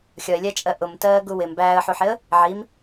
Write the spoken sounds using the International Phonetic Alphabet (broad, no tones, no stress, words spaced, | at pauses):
xʲɒɪ̯lʲæt͡ʃʼɜ ʔʊmtɜːɡu wɪm bæːə̯ħuħɪə̯ | ʕim